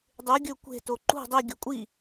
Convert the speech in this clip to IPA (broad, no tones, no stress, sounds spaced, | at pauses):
dˤ ʉ ɡʲ ɵ kʷ e̤ t o ǃ ṳ dˤ i ɡʲ ɵ kʷʼ i